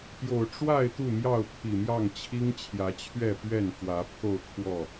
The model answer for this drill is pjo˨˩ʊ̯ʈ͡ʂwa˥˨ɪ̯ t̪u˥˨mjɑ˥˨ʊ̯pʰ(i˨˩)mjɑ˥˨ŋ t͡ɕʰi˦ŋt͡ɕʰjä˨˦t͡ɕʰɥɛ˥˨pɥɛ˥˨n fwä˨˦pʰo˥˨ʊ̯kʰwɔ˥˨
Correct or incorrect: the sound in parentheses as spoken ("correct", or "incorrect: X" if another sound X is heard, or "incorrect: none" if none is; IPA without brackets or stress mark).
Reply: correct